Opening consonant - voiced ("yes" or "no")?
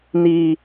yes